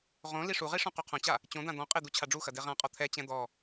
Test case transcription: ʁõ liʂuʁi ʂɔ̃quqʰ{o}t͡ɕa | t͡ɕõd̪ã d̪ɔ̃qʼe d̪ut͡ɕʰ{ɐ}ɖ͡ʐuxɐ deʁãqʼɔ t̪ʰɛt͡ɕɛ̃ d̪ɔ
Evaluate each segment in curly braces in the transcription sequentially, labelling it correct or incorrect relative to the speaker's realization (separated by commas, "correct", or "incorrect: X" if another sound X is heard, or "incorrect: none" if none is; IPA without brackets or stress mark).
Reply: incorrect: õ, incorrect: a